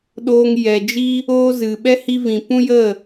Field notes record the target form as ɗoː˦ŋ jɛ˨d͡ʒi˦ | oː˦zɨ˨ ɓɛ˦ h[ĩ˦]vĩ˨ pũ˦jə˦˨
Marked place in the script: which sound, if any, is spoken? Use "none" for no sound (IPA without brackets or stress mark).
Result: i˦